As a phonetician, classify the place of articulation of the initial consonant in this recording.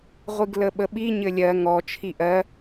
uvular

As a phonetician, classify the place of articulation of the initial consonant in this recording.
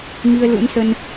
velar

